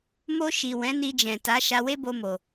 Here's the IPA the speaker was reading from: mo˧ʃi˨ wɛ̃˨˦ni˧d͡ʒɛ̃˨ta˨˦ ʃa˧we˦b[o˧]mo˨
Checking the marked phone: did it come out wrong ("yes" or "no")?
no